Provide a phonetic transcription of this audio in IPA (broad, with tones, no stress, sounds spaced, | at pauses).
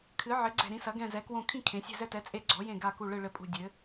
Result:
kʰ ɨ˨˥ ʕ ɘ˨˥ ɡ͡ǀ ɛ̤˦˨ ɾ ĩ˨˥ s ɐ˨˥ ɡ ɛ̃˦˨ z ɛ˨˥ k w õ˦˨ kʰ ĩ˦˨ kʰ ẽ˨˥ sʲ ɛ̤˦˨ z ɛ˦˨ t ɛ˨˥ t͡sʼ e˦˨ ɡ͡ǀ ɔ˨˥ j ẽ˦˨ ɡ a˦˨ k u˦˨ ɭ ɨ˦˨ ɭ ɘ˦˨ pʼ ṳ˦˨ dʲ ɘ˨˥